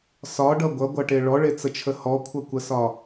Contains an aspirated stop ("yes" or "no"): yes